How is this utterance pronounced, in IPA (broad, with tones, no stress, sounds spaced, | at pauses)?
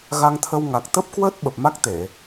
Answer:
ɣ a˧ ŋ t̪ʰ ə˧ w ŋ a˨˩ k̚ t̪ ə˦˥ p̚ k w əː˦˥ t̚ ɓ ə˨˩ p̚ m a˦˥ k̚ t̪ e˧˩˨